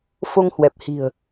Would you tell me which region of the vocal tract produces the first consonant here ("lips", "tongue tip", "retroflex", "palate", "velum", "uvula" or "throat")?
lips